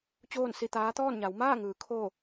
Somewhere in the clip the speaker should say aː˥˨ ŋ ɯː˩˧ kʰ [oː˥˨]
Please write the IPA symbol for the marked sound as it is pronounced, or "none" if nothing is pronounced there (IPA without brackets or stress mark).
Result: oː˥˨